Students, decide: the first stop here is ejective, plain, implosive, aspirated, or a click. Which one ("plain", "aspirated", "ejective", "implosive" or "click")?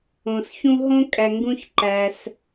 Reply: ejective